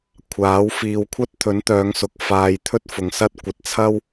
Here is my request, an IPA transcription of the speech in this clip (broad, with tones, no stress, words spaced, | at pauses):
kʷʰaː˨˥w fiː˨wkʷʰɐ˥t̚ t̪ʰɵ˨˥nt̪œː˨˧ŋsʊ˨k̚ faː˨j t̪ʰɵ˥t̚fʊ˨˩ŋ sɐ˥t̚ kʷɐ˨t̚t͡sʰɐ˥w